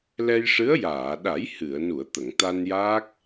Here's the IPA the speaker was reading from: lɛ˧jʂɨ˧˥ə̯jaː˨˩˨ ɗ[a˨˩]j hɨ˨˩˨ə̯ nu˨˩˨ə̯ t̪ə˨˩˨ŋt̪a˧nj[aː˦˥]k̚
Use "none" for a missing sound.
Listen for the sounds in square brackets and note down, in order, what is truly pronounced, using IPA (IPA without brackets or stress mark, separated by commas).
a˨˩˦, aː˦˥